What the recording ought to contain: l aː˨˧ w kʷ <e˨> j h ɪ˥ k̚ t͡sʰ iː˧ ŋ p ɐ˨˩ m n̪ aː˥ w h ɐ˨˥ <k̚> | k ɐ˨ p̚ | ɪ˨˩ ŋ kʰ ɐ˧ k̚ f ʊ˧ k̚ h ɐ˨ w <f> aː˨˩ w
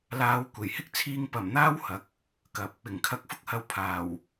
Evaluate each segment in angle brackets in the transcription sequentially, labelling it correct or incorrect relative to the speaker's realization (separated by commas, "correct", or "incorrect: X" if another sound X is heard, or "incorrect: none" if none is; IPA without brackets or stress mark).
incorrect: e˨˩, correct, incorrect: pʰ